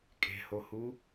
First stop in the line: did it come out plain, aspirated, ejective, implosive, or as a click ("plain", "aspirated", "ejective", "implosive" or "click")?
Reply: ejective